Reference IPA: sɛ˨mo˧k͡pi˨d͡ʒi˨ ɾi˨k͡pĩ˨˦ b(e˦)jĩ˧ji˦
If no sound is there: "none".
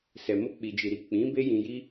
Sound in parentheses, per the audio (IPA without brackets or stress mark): e˦